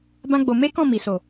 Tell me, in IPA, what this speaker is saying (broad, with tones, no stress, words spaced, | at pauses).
bã˦ɡ͡bo˧ me˦kɔ̃˦˨ mi˨˦so˦˨